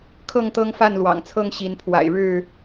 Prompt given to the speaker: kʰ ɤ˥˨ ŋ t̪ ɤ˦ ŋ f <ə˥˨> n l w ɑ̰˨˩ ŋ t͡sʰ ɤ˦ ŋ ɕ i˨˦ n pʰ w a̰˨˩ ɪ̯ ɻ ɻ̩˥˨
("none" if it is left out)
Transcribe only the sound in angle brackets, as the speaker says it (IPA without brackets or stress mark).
a˥˨